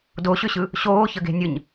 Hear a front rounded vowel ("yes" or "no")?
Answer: yes